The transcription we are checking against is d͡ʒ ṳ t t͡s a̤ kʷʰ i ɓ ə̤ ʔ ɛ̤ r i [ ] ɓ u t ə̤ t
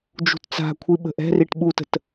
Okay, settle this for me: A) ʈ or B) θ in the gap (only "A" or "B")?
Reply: A